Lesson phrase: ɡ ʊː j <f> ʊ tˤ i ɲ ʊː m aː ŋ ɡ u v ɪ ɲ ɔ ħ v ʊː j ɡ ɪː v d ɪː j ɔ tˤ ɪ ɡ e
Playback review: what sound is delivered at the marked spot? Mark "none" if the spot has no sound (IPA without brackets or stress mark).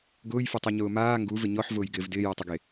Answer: f